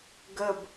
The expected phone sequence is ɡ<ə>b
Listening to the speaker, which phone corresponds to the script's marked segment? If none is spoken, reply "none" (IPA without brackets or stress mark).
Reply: ə